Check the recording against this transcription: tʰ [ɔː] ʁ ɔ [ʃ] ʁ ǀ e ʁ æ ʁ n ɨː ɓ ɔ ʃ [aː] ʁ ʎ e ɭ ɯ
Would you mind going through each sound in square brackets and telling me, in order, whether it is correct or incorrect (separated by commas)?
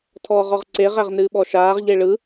correct, incorrect, correct